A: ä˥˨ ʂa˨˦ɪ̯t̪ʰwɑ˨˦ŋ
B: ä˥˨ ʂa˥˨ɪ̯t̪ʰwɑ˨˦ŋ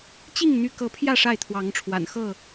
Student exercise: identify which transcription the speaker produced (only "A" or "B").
B